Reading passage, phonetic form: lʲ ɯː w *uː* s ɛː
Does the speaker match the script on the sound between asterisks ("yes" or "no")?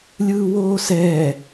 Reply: no